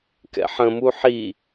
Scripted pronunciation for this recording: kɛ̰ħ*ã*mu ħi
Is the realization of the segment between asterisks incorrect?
yes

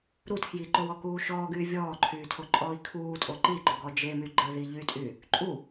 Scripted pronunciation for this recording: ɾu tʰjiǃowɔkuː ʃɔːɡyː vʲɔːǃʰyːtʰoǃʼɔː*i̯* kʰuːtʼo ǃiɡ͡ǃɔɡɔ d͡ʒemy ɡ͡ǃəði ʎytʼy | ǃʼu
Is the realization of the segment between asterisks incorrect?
no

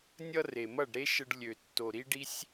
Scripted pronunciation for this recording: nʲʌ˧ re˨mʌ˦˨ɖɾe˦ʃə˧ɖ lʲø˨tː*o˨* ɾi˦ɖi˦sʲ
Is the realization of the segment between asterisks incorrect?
no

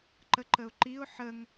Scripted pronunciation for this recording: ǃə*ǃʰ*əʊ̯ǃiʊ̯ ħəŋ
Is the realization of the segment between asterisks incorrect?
yes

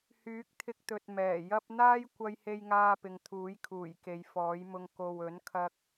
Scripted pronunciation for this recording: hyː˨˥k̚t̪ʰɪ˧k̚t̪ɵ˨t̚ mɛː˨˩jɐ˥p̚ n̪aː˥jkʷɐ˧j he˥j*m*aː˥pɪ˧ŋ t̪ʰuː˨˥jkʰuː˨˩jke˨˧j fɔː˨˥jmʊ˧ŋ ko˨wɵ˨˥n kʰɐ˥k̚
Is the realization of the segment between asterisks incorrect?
yes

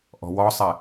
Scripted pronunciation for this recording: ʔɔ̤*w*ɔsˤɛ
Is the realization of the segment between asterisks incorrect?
no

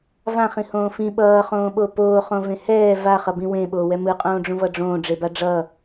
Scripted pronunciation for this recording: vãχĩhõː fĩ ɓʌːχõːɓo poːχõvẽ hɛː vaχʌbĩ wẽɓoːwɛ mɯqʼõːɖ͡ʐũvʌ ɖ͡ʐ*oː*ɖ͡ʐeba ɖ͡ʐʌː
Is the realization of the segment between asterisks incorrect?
yes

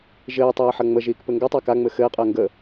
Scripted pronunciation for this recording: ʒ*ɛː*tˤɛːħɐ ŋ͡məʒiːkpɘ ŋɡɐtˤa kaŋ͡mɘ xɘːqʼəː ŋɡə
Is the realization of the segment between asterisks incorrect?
yes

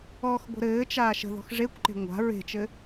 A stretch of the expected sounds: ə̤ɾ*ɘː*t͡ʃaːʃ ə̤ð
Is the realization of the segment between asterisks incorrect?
no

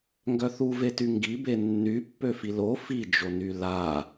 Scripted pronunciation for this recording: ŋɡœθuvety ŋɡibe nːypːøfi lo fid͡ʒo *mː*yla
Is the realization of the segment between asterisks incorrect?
yes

